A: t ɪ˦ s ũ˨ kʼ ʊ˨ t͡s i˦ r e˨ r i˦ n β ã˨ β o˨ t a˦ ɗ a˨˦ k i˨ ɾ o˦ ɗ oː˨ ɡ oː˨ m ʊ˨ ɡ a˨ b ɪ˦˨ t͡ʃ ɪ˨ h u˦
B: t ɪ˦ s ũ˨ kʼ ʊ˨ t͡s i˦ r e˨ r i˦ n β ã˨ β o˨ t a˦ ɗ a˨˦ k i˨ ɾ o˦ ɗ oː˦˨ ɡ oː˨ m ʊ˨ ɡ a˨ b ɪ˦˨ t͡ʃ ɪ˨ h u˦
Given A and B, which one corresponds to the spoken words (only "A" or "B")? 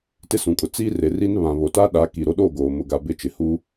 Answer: B